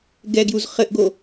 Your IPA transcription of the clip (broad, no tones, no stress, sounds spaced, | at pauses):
ɡ ɛ ɡ j u z χ ɘ ʔ ɡ o